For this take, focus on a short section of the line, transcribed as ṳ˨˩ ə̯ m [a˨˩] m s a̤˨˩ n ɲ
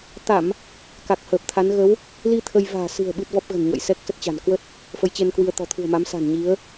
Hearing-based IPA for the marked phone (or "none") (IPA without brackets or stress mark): a˨˦